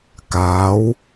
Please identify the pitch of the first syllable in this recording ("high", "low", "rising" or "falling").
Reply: rising